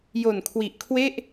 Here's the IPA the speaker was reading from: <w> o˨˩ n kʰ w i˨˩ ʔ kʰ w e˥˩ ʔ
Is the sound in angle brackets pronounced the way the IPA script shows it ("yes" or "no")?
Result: no